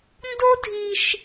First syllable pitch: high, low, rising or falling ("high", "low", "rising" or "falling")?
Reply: high